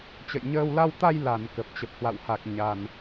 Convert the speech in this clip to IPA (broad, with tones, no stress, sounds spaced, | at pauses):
t͡ɕ ə̰˧˨ j ɲ əː˧ w l a˧ w t̪ a˧ j l a˧˩ n k ə˨˩ p̚ t͡ɕ ə˨˩ p̚ h w a̰˧˨ w h a˨˩ k̚ ɲ a˨˩ n